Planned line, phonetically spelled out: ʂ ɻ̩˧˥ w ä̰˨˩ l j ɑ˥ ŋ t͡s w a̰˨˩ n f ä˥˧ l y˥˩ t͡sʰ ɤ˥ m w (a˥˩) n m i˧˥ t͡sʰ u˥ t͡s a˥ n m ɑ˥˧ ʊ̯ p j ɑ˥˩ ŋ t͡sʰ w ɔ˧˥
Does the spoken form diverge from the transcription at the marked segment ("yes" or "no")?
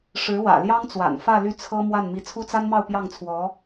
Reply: no